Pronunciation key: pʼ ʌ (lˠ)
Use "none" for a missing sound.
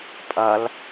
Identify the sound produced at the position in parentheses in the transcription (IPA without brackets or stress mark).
l